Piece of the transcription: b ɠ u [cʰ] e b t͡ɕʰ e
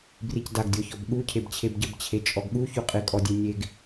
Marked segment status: correct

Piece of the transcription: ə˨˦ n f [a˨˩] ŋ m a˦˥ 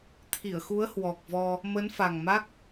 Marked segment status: correct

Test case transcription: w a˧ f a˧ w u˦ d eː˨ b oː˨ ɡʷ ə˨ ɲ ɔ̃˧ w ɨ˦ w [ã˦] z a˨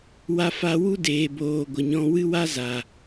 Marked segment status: incorrect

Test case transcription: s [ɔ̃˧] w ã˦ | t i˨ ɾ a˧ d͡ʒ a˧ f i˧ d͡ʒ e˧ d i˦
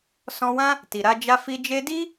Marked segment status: correct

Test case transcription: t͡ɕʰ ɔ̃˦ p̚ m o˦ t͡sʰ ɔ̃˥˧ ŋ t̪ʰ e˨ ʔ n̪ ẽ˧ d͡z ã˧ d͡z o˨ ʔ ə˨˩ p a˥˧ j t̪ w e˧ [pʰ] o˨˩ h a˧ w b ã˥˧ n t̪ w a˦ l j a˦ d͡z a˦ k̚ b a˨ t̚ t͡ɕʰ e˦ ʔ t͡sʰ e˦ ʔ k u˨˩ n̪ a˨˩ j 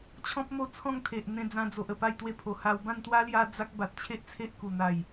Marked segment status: correct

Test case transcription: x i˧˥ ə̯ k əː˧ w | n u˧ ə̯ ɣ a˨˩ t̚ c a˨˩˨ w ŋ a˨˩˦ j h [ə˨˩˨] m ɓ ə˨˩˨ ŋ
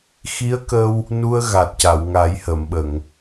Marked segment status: correct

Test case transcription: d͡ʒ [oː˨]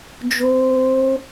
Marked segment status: incorrect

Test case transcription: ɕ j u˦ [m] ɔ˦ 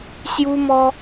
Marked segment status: correct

